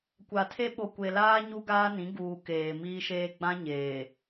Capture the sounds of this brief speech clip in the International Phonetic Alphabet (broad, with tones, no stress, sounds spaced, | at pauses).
kʷ a˨ tʰ e˦ ɓ o˨ kʷ e˨ l aː˦ ɲ u˦ ɡ aː˦ n ĩ˨˦ ɡ uː˨ k eː˨ m iː˦ ʃ eː˦ ɡ͡b ã˦ ɲ eː˨